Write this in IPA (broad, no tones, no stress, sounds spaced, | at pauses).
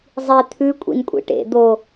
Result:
zˤ i t̪ʰ ʉ kʷʼ ḭ n kʷʼ ḭ ʈ ḛ d̪ o